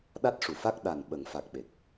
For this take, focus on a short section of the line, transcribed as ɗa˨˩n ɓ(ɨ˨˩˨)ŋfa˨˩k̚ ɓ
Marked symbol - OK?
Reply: no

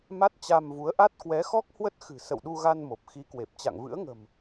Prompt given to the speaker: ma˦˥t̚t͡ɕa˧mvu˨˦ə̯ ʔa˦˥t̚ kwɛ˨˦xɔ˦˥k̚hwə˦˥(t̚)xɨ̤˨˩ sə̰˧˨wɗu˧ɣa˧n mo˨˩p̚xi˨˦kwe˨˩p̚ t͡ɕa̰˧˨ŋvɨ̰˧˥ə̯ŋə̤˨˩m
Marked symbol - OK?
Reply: yes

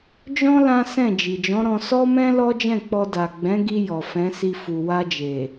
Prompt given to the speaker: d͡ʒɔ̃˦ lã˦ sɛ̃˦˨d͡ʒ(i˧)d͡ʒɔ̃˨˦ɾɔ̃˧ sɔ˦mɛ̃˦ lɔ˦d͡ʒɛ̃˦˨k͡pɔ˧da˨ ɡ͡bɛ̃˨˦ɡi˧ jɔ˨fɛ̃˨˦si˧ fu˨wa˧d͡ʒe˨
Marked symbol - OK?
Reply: no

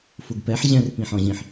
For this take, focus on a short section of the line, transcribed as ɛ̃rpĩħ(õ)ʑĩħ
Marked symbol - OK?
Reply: no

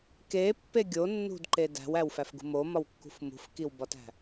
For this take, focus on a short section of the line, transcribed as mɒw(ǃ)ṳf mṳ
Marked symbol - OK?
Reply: no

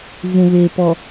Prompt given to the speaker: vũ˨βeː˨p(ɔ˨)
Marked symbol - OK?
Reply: yes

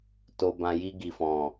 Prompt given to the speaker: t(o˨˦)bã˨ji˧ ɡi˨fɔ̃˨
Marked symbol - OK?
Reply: no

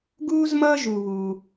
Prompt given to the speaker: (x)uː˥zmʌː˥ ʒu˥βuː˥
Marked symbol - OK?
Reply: no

